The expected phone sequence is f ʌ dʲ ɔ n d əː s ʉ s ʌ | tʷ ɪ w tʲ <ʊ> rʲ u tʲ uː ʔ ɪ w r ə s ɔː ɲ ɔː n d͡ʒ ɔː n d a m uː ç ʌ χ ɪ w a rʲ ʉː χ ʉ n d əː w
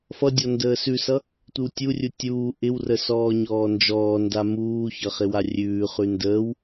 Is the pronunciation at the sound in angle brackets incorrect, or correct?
incorrect: u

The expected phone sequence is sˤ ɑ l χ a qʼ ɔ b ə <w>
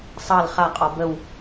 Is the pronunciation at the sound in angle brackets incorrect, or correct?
correct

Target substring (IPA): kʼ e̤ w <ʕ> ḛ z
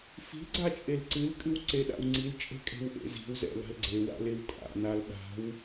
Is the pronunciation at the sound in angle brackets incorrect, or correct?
incorrect: ʔ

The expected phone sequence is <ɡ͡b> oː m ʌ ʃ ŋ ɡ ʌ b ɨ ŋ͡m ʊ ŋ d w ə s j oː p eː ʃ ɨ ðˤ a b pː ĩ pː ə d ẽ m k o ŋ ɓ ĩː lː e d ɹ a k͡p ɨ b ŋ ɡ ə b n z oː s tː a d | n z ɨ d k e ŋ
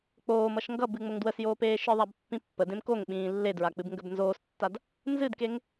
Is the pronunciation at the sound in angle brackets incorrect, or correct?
incorrect: k͡p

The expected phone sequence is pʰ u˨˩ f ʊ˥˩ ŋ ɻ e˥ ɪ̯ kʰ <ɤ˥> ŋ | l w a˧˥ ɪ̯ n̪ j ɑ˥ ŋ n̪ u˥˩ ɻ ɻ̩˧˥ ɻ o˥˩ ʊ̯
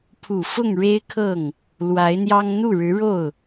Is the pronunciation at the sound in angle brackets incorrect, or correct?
incorrect: ɤ˥˩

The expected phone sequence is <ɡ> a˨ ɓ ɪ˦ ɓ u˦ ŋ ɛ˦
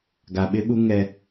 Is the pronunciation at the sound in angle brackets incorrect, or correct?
correct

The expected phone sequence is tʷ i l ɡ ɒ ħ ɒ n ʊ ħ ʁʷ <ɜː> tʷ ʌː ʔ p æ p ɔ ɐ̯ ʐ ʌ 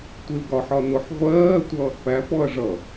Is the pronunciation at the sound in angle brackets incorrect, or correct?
correct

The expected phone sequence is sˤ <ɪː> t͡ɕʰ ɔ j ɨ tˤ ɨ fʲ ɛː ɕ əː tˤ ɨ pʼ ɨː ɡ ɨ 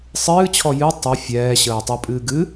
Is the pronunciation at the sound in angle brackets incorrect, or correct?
incorrect: ɨː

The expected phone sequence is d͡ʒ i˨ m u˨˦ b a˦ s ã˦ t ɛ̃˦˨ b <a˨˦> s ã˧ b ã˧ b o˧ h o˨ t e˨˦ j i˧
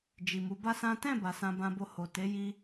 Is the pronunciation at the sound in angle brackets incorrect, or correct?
incorrect: a˨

